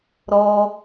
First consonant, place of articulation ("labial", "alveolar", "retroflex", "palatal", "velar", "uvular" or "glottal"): alveolar